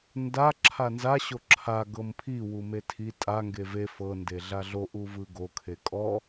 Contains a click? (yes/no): yes